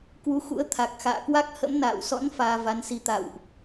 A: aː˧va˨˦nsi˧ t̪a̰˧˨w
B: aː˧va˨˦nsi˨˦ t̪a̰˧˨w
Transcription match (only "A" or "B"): A